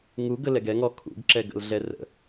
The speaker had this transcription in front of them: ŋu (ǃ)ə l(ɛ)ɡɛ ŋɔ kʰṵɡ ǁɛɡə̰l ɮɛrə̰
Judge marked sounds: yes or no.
no, yes

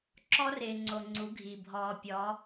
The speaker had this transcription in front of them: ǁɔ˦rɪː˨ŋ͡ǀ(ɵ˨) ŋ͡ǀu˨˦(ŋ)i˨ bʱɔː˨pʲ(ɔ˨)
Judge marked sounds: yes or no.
no, no, no

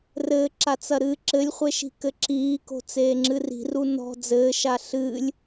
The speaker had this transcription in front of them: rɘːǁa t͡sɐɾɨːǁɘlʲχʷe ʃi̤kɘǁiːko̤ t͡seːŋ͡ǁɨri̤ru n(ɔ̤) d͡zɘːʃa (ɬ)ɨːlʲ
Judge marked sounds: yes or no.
yes, yes

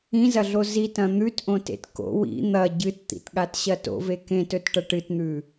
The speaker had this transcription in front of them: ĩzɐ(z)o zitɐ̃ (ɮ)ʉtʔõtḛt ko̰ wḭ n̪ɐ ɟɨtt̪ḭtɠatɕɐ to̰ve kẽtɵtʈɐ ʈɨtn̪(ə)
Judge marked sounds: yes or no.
no, no, no

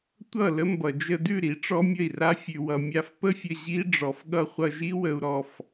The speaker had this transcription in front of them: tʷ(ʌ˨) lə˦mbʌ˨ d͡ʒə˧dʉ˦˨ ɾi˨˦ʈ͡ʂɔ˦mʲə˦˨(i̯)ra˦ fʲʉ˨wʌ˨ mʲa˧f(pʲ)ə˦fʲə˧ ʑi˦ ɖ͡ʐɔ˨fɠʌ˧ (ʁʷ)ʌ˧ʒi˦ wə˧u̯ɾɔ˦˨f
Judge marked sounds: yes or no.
no, yes, no, no

